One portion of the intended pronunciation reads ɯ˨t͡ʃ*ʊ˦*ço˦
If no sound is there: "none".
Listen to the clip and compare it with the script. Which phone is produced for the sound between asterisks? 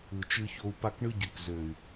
ɯ˦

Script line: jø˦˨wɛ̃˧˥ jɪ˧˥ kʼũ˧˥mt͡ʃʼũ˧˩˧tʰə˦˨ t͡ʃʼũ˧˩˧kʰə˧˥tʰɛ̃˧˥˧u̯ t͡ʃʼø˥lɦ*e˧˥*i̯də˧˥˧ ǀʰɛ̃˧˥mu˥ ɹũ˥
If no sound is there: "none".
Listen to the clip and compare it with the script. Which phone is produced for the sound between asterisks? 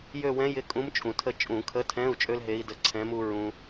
e˧˥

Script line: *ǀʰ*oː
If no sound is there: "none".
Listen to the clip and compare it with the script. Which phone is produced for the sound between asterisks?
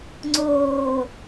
ŋ͡ǀ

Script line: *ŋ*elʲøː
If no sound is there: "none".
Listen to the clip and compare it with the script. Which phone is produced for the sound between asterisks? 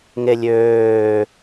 ŋ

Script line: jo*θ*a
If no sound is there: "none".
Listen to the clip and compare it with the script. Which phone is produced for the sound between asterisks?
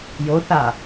θ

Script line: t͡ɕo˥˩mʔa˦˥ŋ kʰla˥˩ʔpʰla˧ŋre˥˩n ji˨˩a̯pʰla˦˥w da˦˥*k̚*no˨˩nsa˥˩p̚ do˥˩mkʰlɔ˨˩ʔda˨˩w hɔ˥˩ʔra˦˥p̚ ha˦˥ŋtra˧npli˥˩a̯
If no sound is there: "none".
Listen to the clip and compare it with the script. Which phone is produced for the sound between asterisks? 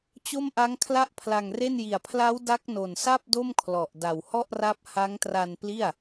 k̚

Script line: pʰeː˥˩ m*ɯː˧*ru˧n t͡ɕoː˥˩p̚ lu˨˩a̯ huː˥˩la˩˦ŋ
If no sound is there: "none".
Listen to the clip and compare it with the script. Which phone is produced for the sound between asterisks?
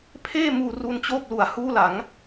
uː˧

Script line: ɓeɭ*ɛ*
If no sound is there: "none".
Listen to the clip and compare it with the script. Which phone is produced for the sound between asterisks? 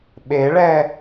ɛ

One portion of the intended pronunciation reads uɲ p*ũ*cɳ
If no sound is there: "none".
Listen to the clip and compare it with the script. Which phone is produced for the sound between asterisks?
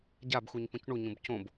ũ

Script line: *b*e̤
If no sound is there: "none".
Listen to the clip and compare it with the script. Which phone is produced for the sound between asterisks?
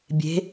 bʲ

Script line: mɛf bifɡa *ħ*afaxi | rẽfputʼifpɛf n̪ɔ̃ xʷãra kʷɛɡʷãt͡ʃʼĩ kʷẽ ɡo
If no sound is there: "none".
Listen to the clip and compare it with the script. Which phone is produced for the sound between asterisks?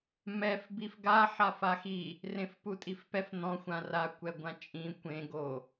ħ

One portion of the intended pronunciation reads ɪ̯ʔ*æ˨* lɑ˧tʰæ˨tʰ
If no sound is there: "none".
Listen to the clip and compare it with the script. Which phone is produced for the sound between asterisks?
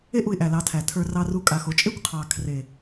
æ˨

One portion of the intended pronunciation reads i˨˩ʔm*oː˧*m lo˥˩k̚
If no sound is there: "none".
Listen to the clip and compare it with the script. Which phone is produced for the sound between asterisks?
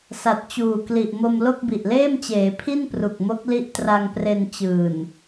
o˧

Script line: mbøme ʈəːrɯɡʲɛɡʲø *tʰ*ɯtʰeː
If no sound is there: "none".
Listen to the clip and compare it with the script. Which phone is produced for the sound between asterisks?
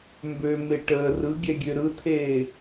ɾ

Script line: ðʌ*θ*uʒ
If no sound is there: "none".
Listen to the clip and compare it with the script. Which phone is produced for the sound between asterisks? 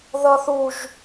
θ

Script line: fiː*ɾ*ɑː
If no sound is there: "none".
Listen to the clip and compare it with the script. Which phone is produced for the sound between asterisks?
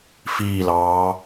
l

